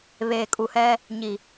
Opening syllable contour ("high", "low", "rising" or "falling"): low